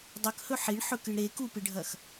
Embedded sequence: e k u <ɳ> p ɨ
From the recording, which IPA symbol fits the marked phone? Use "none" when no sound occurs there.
none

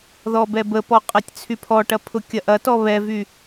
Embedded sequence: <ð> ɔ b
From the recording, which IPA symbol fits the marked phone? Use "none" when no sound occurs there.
ð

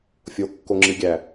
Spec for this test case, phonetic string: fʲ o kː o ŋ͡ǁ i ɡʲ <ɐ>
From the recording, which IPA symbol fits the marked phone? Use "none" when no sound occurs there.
æ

